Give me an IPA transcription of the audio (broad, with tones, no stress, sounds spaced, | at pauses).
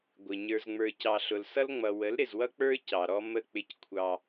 ɡʷ ɪ˨ ɲ ə˞˨ z ŋ͡m ə˞˨ c ɑ˨ ɬ ʊ˨ l s ʌ˦ l ŋ͡m ʌ˨ w ə˨˦ l ɾ ɪ˨ z w ʌ˦ k͡p ə˞˦ c ɑ˨ ɾ ɔ˦ m ə˦˨ k͡p ɪ˦ c kʷʰ ɑ˦